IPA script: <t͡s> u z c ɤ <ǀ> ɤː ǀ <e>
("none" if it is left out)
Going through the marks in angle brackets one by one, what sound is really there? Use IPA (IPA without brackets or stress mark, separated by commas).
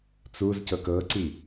t͡s, k, i